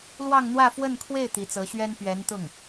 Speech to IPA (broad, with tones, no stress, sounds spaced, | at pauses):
l w ɑ˥˧ ŋ n̪ w ä˥˧ f w ə˥˧ n kʰ w e˥˩ ɪ̯ t̪ i˧˥ t͡s ɤ˧˥ ɕ ɥ ɛ˥ n p ɥ ɛ˧˥ n t̪ ʊ˥˩ ŋ